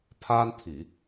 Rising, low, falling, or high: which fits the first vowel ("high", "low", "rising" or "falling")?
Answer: high